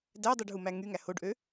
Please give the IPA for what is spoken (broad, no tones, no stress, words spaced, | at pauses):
dædˤyɖɦumæ ŋyŋæ hoɖʔø